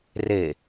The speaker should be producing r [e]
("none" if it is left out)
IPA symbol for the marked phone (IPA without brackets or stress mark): e